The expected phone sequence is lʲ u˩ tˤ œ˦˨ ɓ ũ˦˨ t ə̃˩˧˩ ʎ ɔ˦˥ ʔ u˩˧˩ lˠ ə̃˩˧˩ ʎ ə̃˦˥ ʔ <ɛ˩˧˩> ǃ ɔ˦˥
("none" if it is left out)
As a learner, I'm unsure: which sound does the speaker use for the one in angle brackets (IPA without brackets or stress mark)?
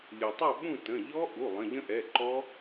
ɛ˩˧˩